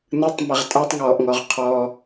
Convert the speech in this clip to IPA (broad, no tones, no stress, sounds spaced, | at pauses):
n ɯ tˤ m ɛ ʁ tʼ a tˤ ŋ ɔː ʔ ŋ ɔ ʁ qʰ ɔː